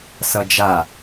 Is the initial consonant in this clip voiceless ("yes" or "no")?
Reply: yes